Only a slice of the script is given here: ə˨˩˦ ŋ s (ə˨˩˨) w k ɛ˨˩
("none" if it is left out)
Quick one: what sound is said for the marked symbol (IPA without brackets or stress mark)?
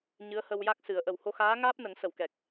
ə˨˩˨